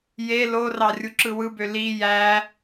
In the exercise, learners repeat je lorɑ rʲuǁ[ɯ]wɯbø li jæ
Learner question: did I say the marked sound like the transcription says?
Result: yes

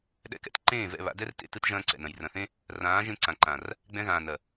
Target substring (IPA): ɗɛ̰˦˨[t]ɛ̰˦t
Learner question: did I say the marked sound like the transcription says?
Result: no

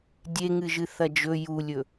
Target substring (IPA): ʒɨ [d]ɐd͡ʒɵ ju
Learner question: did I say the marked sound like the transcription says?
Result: no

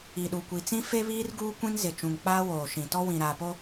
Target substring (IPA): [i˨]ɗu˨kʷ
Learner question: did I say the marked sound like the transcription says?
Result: yes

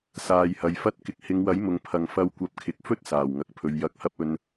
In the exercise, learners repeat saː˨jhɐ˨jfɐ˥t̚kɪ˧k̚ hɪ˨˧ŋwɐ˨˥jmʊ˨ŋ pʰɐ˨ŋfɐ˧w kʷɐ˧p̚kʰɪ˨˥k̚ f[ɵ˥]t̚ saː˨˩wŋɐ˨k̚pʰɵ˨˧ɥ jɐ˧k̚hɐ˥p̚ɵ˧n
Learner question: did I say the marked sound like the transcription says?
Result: yes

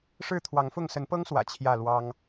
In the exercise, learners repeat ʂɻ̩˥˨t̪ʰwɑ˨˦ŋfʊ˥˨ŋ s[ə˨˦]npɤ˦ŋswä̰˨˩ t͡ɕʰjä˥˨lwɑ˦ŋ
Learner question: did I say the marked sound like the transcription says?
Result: yes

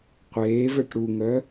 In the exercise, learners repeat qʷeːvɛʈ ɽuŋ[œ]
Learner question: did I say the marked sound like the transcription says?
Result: yes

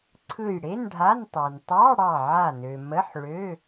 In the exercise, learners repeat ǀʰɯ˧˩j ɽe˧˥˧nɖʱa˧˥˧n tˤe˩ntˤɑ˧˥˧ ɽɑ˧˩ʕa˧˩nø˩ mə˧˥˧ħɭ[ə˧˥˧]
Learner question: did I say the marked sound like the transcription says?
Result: no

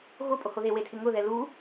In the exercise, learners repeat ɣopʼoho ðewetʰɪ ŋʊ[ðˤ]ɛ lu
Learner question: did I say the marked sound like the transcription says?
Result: no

